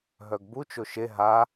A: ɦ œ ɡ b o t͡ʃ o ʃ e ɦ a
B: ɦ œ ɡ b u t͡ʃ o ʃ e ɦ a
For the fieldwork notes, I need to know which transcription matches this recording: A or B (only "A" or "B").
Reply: B